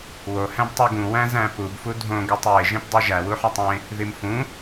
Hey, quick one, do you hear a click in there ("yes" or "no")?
no